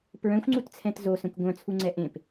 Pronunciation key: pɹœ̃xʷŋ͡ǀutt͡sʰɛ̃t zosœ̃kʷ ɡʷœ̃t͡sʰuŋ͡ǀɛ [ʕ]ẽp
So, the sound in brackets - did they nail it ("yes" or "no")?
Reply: no